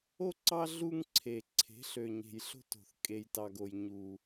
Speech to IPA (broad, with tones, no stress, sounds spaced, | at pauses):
o˦ ǀ ɑ˦ ɮ u˦ ŋ ǀʰ e˨ ǀʰ e̤˨˦ ɬ ø˨ ɲ e̤˨ j ɬ o̤˦ t o̤˨ θ kʼ e˨ j t ɑ˨ ɡ o˨ j ɲ u˦